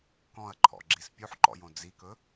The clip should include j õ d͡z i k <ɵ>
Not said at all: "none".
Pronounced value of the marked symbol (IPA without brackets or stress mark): ɵ